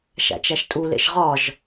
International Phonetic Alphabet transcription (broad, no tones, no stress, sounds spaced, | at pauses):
ʃ æ̰ t͡ʃ æ ʃ tʼ u l ḛ ʃ ʁ ɒ ʒ